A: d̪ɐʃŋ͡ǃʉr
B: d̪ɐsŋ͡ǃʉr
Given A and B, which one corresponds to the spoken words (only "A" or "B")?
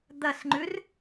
B